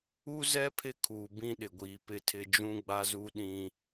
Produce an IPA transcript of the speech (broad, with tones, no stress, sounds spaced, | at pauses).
u˦ z ɛ˦ pʰ ɪ˦ kʰ uː˨ b ĩ˦ ɗ ɪ˨ ɡʷ iː˨ p ɪ˦ tʰ ɪ˦ d͡ʒ ũ˦ ɡ͡b a˦ z u˦ ɗ ĩ˦